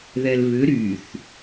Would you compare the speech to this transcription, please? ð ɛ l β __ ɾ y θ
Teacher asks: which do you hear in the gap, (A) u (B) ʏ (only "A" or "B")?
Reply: B